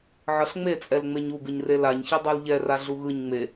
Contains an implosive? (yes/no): no